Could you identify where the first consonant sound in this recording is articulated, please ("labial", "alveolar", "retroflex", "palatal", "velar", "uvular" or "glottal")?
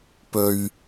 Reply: labial